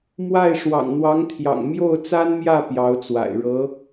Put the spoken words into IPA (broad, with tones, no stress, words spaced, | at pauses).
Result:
mwa˥˩ɪ̯ ʂwɑ̰˨˩ŋn̪wɑ˧˥ŋt̪ʰjɑ̰˨˩ŋ mjo˥˩ʊ̯t͡sa˥nmjä˥˩ pjɑ˧˥ʊ̯t͡swa̰˨˩ɪ̯ ɻɤ˧˥